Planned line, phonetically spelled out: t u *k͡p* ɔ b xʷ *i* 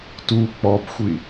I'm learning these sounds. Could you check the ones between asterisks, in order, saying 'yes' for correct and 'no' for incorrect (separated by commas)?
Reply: yes, yes